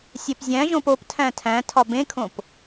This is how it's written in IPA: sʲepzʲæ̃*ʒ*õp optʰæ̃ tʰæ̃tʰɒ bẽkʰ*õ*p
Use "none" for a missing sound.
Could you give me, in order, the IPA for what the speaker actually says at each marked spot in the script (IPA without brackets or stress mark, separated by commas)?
ʒ, õ